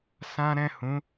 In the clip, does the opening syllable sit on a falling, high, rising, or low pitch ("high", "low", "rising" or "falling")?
high